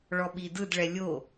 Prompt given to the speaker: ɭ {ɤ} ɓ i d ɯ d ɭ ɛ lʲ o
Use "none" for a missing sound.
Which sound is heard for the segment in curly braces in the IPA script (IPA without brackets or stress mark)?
ɔ